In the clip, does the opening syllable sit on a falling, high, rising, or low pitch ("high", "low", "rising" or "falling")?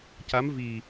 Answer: rising